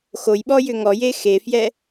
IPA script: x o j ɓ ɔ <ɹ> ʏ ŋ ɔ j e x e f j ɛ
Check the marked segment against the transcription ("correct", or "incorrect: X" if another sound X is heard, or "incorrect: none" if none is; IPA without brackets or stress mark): incorrect: j